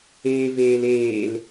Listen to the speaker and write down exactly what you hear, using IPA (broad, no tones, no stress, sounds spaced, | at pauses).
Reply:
eː v eː l eː l